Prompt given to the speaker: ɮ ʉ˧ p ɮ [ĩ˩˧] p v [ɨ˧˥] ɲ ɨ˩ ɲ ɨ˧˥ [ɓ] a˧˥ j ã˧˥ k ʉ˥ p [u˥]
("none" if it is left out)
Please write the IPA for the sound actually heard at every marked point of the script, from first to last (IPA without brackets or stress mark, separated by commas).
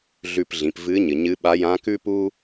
ĩ˩˧, ɨ˧˥, ɓ, u˥